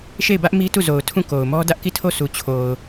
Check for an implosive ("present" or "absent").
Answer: absent